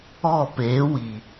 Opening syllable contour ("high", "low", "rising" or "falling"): falling